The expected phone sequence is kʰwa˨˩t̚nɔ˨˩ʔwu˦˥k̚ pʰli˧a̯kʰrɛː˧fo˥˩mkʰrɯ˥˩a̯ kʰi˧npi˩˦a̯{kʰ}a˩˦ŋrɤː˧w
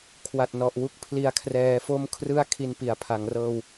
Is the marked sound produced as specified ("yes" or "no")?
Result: no